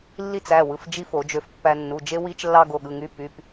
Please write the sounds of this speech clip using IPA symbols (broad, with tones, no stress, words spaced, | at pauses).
lːi˥t͡sæ˩˧˩wɯ˩˧˩f d͡ʒi˥fo˨˩˦d͡ʒø˧f pːæ˧nːu˩˧˩d͡ʒe˥ wi˥t͡ʃlːɑ˥ɡo˩˧˩ɠɯ˩˧˩ ŋy˥ py˩˧˩p